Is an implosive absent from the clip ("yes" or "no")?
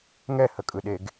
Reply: no